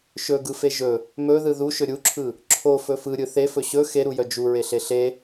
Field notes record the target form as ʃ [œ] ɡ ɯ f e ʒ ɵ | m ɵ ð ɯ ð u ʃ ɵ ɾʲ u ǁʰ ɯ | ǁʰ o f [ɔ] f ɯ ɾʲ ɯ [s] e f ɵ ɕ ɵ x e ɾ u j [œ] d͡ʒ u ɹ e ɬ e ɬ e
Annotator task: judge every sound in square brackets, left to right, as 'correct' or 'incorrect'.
incorrect: ɵ, incorrect: ɵ, incorrect: θ, correct

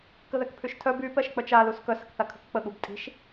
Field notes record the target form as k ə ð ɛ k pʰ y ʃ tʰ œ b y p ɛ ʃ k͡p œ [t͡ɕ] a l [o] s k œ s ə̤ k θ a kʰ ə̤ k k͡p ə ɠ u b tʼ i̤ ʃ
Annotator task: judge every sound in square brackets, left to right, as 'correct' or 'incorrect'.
incorrect: t͡ʃ, incorrect: u

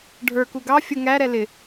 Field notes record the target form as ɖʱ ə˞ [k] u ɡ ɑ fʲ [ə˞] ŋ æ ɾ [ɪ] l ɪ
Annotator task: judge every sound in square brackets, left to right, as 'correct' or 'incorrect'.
correct, incorrect: ə, incorrect: ɛ

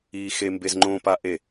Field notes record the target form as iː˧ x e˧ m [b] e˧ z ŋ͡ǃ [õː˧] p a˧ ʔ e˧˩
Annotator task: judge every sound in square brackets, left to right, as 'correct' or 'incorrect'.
correct, correct

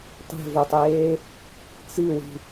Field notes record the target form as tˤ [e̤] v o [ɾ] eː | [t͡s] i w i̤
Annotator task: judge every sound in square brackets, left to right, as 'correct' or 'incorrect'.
correct, incorrect: tˤ, correct

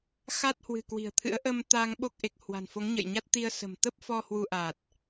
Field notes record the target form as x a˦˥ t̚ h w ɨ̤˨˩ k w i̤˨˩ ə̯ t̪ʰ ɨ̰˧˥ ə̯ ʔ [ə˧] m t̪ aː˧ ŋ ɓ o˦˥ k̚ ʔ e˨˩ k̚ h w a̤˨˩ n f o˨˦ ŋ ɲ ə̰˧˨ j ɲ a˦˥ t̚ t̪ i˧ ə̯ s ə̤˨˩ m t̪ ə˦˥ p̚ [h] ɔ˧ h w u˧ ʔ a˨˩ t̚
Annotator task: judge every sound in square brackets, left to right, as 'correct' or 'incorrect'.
correct, incorrect: f

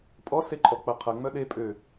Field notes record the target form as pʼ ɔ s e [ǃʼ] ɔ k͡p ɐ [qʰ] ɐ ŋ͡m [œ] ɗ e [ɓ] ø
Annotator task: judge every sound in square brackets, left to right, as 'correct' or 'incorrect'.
correct, correct, correct, incorrect: pʼ

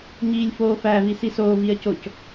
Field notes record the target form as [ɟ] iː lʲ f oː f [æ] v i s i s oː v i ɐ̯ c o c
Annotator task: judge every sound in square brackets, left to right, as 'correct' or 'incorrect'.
incorrect: ɲ, correct

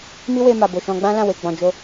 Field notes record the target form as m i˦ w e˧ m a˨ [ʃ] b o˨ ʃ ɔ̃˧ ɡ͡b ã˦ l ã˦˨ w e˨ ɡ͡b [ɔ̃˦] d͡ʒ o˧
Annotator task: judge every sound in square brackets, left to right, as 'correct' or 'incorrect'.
incorrect: none, incorrect: ɔ̃˨

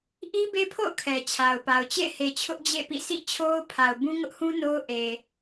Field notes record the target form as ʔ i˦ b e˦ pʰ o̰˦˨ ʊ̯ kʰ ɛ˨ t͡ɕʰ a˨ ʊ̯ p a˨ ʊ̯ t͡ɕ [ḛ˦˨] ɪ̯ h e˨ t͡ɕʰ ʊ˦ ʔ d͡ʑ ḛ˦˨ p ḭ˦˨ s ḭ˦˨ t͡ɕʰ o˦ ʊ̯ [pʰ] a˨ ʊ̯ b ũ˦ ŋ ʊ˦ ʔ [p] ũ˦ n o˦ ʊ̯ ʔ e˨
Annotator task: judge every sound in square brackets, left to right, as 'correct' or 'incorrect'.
correct, correct, incorrect: h

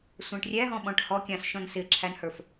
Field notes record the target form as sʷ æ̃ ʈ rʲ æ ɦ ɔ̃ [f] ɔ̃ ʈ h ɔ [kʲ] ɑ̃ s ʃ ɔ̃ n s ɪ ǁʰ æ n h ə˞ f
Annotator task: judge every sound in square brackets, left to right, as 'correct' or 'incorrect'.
incorrect: ɓ, correct

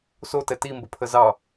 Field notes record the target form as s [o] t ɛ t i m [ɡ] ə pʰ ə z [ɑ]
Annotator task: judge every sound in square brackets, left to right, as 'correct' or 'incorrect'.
correct, incorrect: b, correct

